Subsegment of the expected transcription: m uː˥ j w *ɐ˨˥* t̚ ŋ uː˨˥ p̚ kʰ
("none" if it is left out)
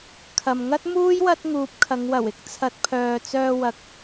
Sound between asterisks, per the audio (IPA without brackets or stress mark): ɐ˥